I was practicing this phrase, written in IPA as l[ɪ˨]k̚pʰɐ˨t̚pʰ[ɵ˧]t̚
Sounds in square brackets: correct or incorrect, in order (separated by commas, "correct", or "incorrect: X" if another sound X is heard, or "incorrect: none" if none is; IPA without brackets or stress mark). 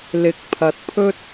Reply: incorrect: ɪ˨˥, incorrect: ɵ˥